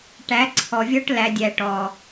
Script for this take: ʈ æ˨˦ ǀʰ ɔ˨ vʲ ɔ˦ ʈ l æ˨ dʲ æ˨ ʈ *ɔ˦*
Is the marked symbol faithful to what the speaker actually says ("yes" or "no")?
no